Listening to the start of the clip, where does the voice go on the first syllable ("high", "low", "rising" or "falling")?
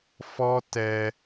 high